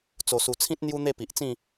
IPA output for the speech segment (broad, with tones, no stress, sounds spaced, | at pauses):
t͡s o˨˩ s u˨˩ t͡sʰ ĩ˦ t̚ n̪ j u˦ n̪ e˥˧ p i˨ ʔ t͡s ĩ˥˧